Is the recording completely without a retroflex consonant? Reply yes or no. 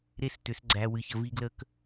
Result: yes